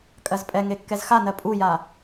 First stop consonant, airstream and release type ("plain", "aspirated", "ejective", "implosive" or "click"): ejective